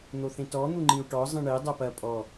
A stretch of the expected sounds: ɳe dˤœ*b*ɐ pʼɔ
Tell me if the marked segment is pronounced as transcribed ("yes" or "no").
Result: no